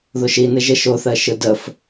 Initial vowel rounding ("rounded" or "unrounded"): rounded